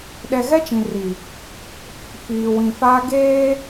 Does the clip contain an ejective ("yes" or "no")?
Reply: no